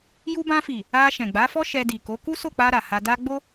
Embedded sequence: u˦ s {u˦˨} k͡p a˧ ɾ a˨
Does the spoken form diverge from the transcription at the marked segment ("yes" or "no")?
yes